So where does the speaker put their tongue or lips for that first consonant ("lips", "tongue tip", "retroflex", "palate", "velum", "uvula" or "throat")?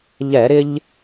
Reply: palate